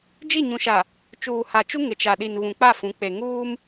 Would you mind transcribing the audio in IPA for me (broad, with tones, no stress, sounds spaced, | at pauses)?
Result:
d͡ʒ i˦˨ ɲ ũ˨ ʃ a˨ | t͡ʃ uː˨ h a˨ t͡ʃ u˦ ŋ ɪ˨ t͡ʃ a˨ ɗ i˨ n β ũ˨ k͡p a˦˨ f ũ˨˦ k͡p e˨ ŋ uː˦ m